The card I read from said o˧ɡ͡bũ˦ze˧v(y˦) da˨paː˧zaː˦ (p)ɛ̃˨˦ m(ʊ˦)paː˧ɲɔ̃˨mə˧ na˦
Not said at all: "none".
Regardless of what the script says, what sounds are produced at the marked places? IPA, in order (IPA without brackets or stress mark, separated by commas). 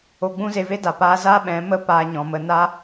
e˦, ɓ, ə˦